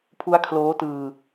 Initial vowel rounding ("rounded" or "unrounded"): rounded